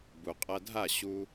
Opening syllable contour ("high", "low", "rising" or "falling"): low